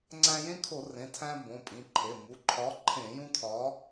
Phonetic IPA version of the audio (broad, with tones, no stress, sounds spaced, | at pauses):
ŋ͡ǀ æ̃˦ j ẽ˦ kʰ o˧˩˧ r ẽ˩˧˩ tʰ æ̃˦ b õ˩˧˩ pʼ ĩ˩˧˩ ǃʰ e˩˧˩ m u˩˧˩ ǃʰ ɒ˨˥ ǃʰ ẽ˧˩˧ j ũ˦ tʰ ɒ˨˥